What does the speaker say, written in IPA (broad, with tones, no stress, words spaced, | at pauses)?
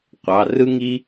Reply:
qʷɑ˩˧˩rɯ˥ŋi˥